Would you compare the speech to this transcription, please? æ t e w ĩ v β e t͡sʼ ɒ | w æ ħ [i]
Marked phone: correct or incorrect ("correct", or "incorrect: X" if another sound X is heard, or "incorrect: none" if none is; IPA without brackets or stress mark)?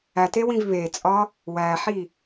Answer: correct